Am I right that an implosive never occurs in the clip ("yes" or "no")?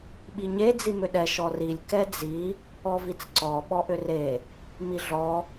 no